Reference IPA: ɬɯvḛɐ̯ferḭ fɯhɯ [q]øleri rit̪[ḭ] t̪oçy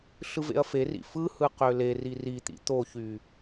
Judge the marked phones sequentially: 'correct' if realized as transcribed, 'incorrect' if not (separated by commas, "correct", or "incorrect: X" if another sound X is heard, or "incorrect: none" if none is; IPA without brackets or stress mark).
correct, correct